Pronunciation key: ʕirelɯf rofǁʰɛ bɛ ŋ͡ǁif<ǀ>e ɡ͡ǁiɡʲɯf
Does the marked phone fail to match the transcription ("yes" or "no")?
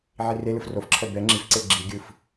no